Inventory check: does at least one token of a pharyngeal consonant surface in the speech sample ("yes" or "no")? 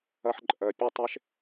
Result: yes